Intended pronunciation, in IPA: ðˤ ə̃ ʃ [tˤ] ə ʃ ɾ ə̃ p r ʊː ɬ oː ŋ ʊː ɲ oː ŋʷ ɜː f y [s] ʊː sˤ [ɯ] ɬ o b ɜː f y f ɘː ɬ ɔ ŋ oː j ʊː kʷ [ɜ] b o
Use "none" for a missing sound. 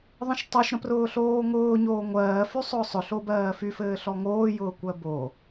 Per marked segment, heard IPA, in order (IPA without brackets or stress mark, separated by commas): tˤ, sˤ, ʊ, ɜ